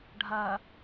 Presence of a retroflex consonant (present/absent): present